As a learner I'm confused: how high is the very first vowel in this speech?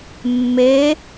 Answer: mid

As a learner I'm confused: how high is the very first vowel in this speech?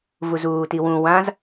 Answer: high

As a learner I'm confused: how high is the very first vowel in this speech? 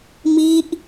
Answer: high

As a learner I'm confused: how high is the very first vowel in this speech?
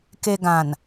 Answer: mid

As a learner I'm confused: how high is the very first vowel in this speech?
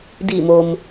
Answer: high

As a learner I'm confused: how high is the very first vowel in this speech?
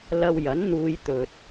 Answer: low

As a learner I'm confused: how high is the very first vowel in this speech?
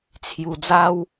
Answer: high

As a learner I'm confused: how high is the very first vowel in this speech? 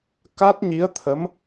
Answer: low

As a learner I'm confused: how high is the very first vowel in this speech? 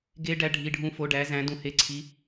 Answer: mid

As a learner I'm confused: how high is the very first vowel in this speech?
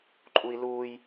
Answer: high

